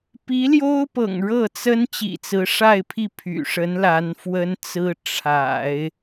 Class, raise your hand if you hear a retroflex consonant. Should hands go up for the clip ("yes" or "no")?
yes